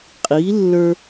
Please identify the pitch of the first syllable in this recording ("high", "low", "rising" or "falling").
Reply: rising